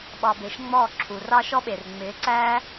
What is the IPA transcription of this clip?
ɓɑ˧be˨˦ʃŋ͡mɔː˦˨ ǁʰu˨rɑ˦ʃɔ˦ɓe˨r ŋ͡mɪː˨˦ǀæː˦

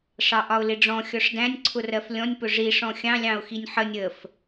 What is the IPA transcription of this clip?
ʂɑʔɒʊ̯lɪɖ͡ʐɔ̃ xʲɔʂdæ̃nʲ ǀʰʊrɜflʲɔ̃nʲ pʊʐi ʂɔ̃xʲɑ̃ lʲɑ̃ʊ̯xinʲħənʲ əf

